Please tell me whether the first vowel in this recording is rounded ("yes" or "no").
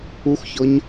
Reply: yes